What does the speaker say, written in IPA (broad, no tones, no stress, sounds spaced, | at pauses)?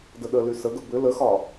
d ə ɗ ə l y s ə ɡ ə b ʏ l ə x ɒ